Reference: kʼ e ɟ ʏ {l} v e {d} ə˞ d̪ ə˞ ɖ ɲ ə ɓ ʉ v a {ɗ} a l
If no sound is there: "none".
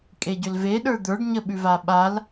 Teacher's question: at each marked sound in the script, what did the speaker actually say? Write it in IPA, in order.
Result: l, ɗ, ɓ

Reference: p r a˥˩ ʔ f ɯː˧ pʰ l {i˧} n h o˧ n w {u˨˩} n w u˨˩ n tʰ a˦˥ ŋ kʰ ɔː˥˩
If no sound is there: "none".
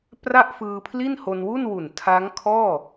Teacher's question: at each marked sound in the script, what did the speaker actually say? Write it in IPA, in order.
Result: i˥˩, u˥˩

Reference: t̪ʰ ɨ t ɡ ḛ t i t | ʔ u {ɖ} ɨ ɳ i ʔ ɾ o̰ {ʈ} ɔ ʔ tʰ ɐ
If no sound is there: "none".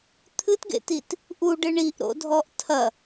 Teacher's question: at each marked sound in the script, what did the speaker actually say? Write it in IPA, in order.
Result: ɖ, dʱ

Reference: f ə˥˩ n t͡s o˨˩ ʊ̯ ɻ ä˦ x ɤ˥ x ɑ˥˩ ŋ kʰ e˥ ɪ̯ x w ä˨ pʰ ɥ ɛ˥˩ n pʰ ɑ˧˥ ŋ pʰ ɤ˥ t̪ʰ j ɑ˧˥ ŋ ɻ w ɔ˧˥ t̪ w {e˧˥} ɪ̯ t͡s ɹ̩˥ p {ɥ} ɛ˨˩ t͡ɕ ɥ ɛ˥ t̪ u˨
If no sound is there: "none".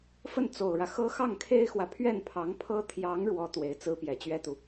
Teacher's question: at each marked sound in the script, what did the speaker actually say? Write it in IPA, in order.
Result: e˧˥, j

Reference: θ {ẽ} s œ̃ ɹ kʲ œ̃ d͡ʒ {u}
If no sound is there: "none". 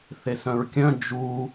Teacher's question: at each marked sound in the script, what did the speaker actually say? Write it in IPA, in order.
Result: e, u

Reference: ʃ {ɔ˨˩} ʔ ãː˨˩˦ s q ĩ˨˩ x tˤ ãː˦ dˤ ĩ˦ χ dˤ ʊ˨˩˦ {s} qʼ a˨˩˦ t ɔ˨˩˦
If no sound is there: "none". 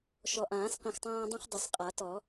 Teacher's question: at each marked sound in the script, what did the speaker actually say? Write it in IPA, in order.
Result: ɔ˨˩, s

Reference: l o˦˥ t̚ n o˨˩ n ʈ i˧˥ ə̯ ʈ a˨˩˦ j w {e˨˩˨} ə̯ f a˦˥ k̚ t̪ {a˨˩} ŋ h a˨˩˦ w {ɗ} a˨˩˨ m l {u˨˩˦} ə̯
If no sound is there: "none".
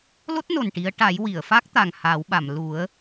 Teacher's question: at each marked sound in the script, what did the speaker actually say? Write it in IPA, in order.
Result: i˨˩˨, a˨˩, ɓ, u˨˩˦

